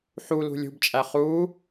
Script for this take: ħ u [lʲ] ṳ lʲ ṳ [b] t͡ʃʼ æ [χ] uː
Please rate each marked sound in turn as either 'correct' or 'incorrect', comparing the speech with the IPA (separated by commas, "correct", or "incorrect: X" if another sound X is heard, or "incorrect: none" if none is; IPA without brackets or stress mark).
incorrect: l, correct, correct